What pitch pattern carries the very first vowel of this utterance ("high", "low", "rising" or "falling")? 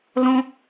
high